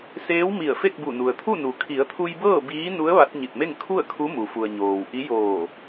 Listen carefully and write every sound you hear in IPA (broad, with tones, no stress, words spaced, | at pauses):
seː˧˥wmi˧˩ə̯ fe˥˨k̚bu˧˩nu˩ə̯t̪ʰu˥˨ nu˩kʰi˩˧ə̯t̪ʰu˧j bɤː˥˨biː˧˥nu˧˥ə̯ ʋa˧˥t̚ɲi˧˩t̚me˥˨ŋ kʰu˥˨ə̯kʰu˧˥ mu˩fu˩ə̯ ɲoː˩w ʔi˧˥joː˧˩